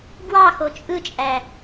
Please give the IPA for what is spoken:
ɡ w ɑ x o t͡ʃʼ ɯ t͡ʃʼ æ

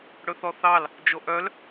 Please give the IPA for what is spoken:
ɽ ɵ θ ɔ θ ɑ l | d͡ʒ o ʔ œ l

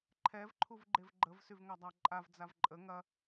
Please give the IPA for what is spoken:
ǃʰ ɛ v ǃʰ u v ɡ͡ǃ e v ɡ͡ǃ ə v s y v ŋ ɐ dˤ a ǃʼ a v d͡z a v ǃʼ ə ŋ ɐ

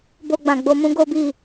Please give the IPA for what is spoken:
b o˧ ɡ͡b ã˨ ɡ͡b o˧ m ũ˦ ɡ o˦ b i˦˨

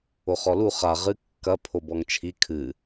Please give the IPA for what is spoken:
o χ ɔ l u χ a ʁ ɨ kː ɐ pʰ o b ɔ ŋ t͡ʃʰ i kʰ ɨ

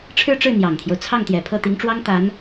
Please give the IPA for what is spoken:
ʈ͡ʂʰ ɻ̩˥˧ ʈ͡ʂ ɻ̩˥˩ n̪ j ɑ˨˩ ŋ t̪ʰ j o˦ ʊ̯ t͡sʰ ɑ˥˩ ŋ t̪ j ɛ˨˩ pʰ ɤ˥˩ t̪ i˧˥ ŋ ʈ͡ʂ w ɑ˥ ŋ t̪ a˧˥ n

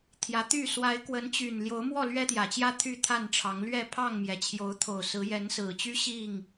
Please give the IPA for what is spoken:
t̪ʰ j ä˨˦ t̪ y˥˨ s w a˨˦ ɪ̯ k w ə˨˦ n t͡ɕ y˨˩ n l j o˨˦ ʊ̯ m w ɔ˥˨ l ɥ ɛ˦ t̪ j ä˨˩ t͡ɕ j ä˦ t̪ʰ y˥˨ t̪ʰ a˥˨ n ʈ͡ʂʰ ɑ˨˦ ŋ l ɥ ɛ˥˨ pʰ ɑ˥˨ ŋ m j ɛ˩ t͡ɕʰ j o˨˦ ʊ̯ t̪ʰ o˨˩ ʊ̯ s ɹ̩˨˦ j ɛ˨˦ n s ɹ̩˨˩ t͡ɕ y˦ ɕ i˥˨ ŋ

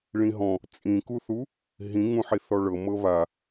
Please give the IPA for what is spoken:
ɭ ĩ ɦ ɔ̃ | t͡sʼ ĩ k u θ u | ɦ ĩ ŋ ũ ħ i θ ɔ ɭ ɤ m ɤ β a

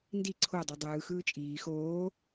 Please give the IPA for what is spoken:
n d i ǀʰ o dˤ o dˤ ɯː x ɯː t͡ʃʼ iː x oː

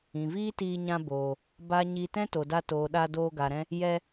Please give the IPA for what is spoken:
ĩ˨ v iː˦ t iː˧ ɲ ã˧ b oː˨ | b a˦ ɲ i˧ t ɛ̃˦ t o˨ d a˧ t oː˨ ɗ a˧ d oː˧ ɡ a˨ ɾ ɛ̃˧ | j ɛ˧

